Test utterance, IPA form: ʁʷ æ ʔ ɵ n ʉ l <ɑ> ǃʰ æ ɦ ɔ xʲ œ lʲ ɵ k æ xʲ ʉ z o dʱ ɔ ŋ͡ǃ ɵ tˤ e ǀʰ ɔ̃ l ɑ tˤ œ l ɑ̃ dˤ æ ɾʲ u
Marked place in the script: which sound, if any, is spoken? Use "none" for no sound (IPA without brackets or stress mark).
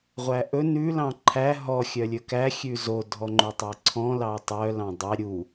ɑ̃